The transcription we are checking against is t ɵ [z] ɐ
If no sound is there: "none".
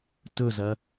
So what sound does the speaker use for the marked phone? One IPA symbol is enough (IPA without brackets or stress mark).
z